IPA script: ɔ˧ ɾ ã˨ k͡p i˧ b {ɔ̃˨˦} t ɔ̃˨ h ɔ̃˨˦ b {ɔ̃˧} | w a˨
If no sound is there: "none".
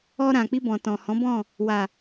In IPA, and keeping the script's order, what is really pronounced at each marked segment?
ɔ̃˨, ɔ̃˦˨

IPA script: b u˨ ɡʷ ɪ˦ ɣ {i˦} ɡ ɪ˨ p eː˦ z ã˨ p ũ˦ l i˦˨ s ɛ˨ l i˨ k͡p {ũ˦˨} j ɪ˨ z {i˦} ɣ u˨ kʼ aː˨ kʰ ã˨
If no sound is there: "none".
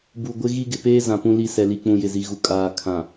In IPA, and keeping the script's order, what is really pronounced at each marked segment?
i˦, ũ˨, i˨

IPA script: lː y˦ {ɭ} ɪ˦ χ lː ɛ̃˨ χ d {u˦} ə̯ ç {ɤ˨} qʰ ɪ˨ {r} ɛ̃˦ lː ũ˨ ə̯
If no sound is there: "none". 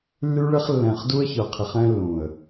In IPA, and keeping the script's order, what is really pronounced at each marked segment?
ɭ, u˦, ɤ˨, χ

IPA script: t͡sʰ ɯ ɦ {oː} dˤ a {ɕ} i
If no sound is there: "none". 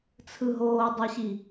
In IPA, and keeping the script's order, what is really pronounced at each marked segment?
oː, ɕ

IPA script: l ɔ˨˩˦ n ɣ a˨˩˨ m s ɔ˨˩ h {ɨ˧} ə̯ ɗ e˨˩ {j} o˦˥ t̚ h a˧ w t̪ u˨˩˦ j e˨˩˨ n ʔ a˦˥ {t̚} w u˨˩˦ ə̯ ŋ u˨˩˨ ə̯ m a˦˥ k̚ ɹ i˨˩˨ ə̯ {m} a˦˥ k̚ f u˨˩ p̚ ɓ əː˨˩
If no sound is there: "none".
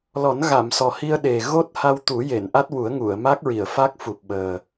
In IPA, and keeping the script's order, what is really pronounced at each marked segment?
i˧, ɣ, t̚, f

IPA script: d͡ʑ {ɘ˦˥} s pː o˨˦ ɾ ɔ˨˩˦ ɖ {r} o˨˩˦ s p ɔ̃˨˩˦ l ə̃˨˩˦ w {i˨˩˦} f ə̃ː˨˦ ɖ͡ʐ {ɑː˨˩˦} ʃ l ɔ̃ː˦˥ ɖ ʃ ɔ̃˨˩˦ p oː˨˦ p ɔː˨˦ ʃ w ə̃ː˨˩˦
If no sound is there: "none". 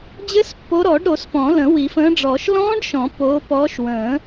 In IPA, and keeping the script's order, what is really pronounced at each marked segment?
ɘ˦˥, ɾ, i˨˩˦, ɔː˨˩˦

